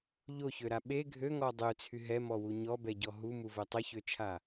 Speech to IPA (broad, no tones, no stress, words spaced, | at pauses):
ʎoçøɾa ɓe ɡʱøŋɔ dˤøt͡sʰy ɦɛmɔwu ɲɔbɛɟɔ ɦumuvɛ tˤəçøt͡ʃʰa